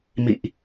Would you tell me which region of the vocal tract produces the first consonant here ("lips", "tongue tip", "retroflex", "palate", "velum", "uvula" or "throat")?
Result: lips